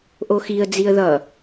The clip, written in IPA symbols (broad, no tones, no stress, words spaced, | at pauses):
ʔoxiə̯ d͡ziə̯ðʌ